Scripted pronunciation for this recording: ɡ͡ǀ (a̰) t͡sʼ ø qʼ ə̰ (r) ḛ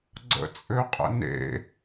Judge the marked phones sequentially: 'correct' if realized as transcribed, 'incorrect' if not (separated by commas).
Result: incorrect, incorrect